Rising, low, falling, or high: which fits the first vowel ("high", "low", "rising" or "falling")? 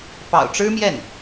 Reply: low